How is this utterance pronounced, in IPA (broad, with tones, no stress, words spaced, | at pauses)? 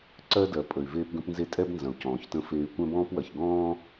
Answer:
ǀɜ˦dɜ˨ pʼə˨y̯veː˦pɡə̃˦pnze˦ tʼɛ˦bnzɐ̃˨u̯ cɔ̃ː˨çtə̃˦feː˦y̯ kʷɛ̃˦bɔ̃ː˦pwɐ˨ç ɡɔ̃ː˦